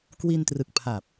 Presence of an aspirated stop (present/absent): present